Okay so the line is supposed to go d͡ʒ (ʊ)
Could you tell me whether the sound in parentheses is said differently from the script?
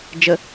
yes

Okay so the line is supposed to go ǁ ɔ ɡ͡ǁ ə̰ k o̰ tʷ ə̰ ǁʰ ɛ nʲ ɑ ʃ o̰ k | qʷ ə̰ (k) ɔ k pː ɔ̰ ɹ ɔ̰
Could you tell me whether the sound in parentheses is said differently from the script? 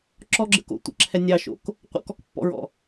no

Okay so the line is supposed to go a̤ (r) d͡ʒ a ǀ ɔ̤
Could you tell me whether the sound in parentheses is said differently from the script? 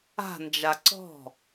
yes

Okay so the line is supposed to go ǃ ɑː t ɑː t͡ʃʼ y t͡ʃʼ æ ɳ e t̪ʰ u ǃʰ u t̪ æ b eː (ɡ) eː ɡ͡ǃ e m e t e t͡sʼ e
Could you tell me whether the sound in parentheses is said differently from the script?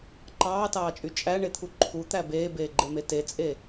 yes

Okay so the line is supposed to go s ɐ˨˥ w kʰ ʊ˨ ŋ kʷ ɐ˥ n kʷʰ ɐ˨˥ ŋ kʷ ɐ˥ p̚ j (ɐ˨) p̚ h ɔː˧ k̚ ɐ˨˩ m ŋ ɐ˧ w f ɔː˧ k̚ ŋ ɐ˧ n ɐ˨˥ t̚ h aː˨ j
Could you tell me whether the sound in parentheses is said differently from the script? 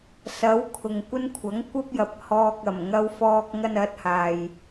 no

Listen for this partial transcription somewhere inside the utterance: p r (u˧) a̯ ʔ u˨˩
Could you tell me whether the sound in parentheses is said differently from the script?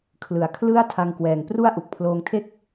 yes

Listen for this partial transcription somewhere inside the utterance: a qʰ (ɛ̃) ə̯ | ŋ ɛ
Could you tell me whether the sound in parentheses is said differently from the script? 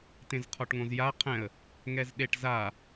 no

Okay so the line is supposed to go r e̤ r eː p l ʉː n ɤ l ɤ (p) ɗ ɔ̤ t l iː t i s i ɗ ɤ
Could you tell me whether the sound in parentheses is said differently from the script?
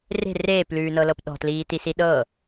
no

